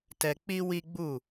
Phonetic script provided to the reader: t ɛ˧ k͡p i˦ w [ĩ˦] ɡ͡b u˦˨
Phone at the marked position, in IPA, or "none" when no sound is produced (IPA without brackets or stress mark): i˦